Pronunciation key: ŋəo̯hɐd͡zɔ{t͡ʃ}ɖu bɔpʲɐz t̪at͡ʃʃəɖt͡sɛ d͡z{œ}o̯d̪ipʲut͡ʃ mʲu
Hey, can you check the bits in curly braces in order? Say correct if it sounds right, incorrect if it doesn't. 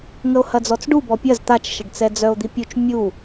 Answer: incorrect: t͡s, correct

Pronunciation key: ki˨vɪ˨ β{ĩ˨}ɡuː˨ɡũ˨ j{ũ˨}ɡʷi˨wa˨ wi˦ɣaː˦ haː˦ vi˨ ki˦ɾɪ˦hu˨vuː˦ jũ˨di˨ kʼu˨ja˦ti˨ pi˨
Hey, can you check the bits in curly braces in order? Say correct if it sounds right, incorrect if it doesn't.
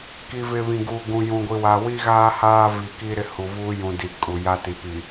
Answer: correct, correct

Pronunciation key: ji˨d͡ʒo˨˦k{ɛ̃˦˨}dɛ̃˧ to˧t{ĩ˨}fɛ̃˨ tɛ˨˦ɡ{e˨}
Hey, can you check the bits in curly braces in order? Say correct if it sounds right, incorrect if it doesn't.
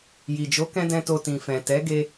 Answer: incorrect: ɛ̃˧, correct, incorrect: e˧

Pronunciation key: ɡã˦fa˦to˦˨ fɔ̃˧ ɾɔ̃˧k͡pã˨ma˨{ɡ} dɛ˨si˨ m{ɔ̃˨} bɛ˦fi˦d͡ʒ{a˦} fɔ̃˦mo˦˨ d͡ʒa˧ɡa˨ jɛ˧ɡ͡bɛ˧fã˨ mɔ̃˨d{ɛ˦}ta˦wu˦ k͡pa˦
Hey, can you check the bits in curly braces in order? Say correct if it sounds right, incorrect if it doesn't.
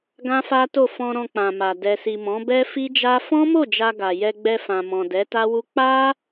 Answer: incorrect: none, incorrect: ɔ̃˨˦, correct, incorrect: ɛ˨˦

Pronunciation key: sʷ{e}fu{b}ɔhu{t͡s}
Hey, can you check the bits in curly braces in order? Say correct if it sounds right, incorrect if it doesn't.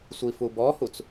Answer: incorrect: i, correct, correct

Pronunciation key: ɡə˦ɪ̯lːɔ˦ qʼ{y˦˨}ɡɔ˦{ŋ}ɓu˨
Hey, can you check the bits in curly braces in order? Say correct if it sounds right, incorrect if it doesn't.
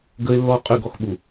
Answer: correct, incorrect: x

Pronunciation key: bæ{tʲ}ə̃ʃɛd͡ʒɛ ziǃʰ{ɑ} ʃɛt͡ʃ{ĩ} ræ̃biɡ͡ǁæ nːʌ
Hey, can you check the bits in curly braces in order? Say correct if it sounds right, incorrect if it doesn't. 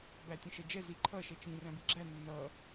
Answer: correct, incorrect: ʌ, correct

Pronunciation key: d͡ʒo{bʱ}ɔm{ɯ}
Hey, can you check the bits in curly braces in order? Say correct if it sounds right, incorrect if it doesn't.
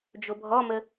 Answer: correct, incorrect: ə

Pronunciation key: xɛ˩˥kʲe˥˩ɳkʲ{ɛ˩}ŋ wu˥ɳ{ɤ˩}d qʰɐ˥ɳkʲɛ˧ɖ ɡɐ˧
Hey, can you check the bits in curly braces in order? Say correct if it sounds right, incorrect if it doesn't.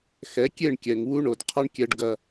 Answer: correct, incorrect: o˩

